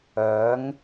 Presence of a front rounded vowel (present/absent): present